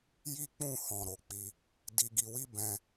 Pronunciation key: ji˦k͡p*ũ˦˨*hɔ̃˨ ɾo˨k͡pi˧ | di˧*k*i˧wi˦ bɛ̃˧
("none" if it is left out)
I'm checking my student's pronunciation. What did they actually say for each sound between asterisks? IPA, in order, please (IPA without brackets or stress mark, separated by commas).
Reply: ũ˦˨, ɡ